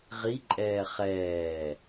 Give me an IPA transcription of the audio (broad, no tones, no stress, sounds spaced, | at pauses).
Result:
ʁ i ǃʼ ɛː χ ɛː